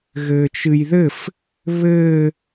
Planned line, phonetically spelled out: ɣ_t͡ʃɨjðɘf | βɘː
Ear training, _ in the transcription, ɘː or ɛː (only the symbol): ɘː